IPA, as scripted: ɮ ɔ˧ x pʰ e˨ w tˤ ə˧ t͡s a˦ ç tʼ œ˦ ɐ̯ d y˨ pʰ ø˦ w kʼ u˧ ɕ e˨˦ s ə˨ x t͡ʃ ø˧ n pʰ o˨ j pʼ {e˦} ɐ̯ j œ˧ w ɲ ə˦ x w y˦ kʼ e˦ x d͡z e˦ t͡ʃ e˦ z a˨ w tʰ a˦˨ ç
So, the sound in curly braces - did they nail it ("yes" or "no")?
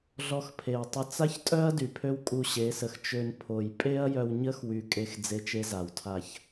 yes